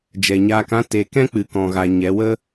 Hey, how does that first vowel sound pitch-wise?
low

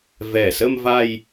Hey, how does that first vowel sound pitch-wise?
low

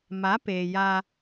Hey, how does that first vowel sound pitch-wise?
rising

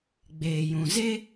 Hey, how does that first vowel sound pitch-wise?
low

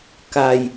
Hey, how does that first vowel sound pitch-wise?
low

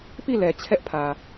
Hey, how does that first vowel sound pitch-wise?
falling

